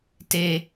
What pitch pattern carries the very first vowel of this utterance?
high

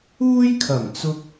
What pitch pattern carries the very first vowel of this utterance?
high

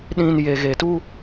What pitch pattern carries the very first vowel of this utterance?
low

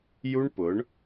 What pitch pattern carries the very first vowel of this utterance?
high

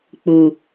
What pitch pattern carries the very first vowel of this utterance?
low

